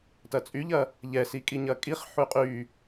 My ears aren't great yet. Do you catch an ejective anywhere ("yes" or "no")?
yes